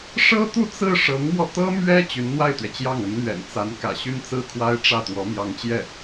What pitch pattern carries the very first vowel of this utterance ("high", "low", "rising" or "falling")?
high